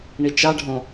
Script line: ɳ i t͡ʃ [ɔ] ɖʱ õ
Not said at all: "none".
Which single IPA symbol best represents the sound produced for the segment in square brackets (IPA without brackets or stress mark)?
ɑ